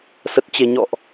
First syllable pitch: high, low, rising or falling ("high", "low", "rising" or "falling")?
low